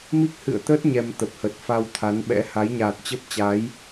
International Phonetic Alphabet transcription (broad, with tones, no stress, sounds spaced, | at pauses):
m i˦˥ k̚ h ɨ̰˧˨ ə̯ t̪ əː˦˥ t̚ ɲ ɛ˧ m t̪ ə˨˩ p̚ h ə˨˩ t̚ f a˧ w t̪ʰ a˨˦ n ɓ ɛ̰˧˥ h a˨˦ j ɲ aː˨˩ t̚ t͡ɕ ə˦˥ p̚ t͡ɕ a˨˦ j